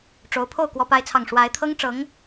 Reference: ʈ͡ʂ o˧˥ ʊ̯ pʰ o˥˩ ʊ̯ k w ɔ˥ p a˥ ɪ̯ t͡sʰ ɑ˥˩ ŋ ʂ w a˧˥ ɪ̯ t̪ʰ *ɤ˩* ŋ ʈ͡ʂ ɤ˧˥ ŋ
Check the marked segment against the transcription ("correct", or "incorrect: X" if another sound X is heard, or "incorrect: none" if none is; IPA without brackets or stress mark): incorrect: ɤ˥